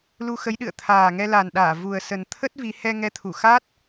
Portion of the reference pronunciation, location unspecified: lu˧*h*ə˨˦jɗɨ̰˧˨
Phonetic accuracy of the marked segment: incorrect: x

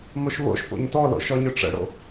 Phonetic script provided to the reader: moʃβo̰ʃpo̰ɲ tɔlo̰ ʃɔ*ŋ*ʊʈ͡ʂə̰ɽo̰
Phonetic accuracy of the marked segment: incorrect: ɲ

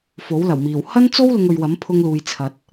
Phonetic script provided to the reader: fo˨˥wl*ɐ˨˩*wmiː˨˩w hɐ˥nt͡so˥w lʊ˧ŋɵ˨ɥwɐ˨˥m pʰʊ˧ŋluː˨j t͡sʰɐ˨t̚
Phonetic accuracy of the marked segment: correct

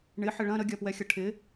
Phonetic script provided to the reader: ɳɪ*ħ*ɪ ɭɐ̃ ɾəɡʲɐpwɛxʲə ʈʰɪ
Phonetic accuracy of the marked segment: correct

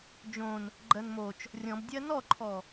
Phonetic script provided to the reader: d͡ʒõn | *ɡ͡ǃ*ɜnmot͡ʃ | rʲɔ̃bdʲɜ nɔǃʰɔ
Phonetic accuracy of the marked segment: correct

